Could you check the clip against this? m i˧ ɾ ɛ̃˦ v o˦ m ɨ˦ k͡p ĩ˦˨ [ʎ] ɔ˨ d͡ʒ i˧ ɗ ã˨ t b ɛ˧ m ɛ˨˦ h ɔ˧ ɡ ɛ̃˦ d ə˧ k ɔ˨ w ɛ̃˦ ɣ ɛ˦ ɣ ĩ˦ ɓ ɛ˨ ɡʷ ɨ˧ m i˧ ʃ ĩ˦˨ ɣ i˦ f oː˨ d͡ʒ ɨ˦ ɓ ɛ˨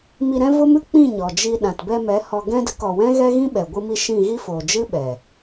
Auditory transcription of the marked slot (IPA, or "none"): ɲ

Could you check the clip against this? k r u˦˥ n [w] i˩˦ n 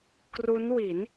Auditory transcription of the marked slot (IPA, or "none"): w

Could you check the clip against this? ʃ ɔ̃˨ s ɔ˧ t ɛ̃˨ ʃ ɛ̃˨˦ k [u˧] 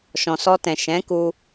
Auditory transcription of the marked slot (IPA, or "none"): u˧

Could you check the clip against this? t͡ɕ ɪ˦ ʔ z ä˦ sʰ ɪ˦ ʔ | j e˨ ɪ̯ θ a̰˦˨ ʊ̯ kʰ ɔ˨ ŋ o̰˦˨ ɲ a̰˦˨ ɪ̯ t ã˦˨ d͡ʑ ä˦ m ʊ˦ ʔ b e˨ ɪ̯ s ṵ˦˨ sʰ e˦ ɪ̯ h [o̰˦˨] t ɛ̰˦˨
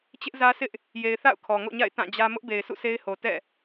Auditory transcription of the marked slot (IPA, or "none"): o˨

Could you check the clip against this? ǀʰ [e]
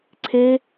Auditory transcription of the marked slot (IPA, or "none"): e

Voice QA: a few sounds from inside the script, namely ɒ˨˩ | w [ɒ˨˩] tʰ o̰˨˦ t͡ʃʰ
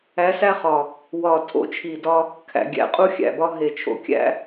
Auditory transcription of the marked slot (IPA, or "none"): ɒ˨˩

